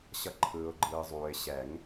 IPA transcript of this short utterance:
ɕʌ˨˥ǃʰɯː˨ʊ̯ɡ͡ǃɯː˨zˤuː˨ɪ̯ ɕɛ˨˩˦ŋ

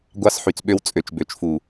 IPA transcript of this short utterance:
ɡʷɑ˦sħy˨t͡sɓø˦w t͡sʼø˨t͡ʃbø˨t͡ʃfu˨

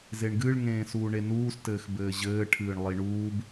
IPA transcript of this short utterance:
zeɳɡɨɭ ŋẽːsuːɳenuːs tɘːxbɘːʑɘː ʈʰɨːɳlˠiɳuːb

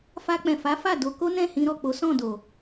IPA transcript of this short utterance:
fa˧k͡pɛ̃˨fa˨˦ fa˦˨do˧ ko˦nɛ̃˦˨hĩ˧ɾɔ˨ k͡po˨˦sɔ̃˦˨do˨

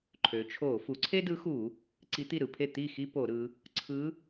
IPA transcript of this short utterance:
ǃʰø˩˧t͡ʃʰo˧˩˧ fu˩˧ǀʰe˥dɯ˧˥xu˧˩˧ | ǀi˧˥t̪i˥˩ɾɯ˩˧pʰe˥˩ t̪i˥˩ xi˥po˧˩˧ɾɯ˩˧ | ǀʰɯ˧˥

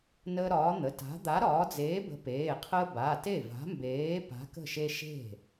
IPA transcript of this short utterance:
nəː˦ɾɒː˨˥n̪ə˩˧˩ ta̤˨˥ d̪a˨˥ ɾɒː˨˥ d͡zeː˨˥bə̤˨˥peː˩˧˩qʰəː˦ ba˩˧˩ te˥˩va̤˨˥mbeː˨˥ pa̤˨˥kə̤˥˩ʃe˦ ʃe̤˥˩

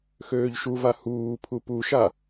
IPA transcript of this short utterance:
xøːʎʃuva huːpʰu puʃa

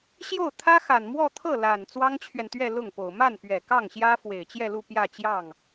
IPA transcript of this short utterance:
ɕjo˥˩ʊ̯t̪ʰä˥xa˨˩nmwɔ˥˧ t̪ʰɤ˥˩la˨˩n t͡swɑ˥ŋt͡ɕʰɥɛ˨nt̪ɥɛ˥˧ lʊ˥˩ŋpo˨˩ʊ̯ ma˥˩npɥɛ˨˩ kɑ˥˩ŋɕjä˥ fwe˨˩ɪ̯t͡ɕjɛ˥˧lu˥˧ pjä˥˧ t͡ɕjɑ˥˩ŋ

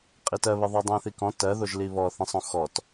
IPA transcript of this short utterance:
qʼitɜβɪðˤɜ dˤĩθikɔ̃ tɜðoʒ liβɔθĩsˤ õxɔt

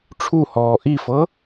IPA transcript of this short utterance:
ʈ͡ʂʰuhɔː ʔifɤ

